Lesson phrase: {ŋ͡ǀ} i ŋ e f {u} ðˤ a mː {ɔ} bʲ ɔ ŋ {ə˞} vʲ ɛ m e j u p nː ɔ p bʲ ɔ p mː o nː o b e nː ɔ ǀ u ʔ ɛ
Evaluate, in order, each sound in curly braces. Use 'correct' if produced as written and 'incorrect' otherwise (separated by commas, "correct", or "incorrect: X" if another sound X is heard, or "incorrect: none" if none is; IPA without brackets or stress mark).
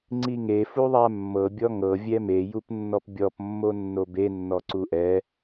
correct, correct, incorrect: ɤ, incorrect: ɤ